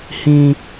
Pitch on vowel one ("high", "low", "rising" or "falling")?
low